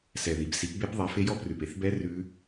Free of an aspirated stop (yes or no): yes